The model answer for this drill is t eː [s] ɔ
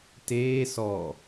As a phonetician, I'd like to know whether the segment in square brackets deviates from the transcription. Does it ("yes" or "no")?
no